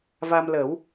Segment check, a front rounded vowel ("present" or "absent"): absent